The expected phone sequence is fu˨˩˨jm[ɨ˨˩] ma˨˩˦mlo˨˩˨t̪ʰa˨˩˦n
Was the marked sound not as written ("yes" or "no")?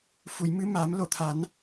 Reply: yes